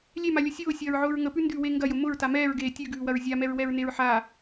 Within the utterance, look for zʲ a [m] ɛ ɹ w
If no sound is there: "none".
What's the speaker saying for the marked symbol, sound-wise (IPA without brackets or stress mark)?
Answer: m